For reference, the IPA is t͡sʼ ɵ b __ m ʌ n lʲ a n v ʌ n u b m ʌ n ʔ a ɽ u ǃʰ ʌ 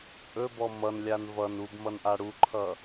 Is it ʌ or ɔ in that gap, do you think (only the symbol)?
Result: ɔ